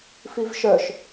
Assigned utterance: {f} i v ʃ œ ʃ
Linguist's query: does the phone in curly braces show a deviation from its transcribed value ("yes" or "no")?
no